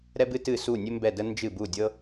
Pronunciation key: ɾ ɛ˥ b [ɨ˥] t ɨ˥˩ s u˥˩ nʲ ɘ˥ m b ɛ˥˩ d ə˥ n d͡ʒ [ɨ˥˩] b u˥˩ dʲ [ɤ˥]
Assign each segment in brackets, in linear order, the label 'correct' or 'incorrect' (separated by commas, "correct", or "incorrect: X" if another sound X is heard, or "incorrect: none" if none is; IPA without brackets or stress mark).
correct, correct, correct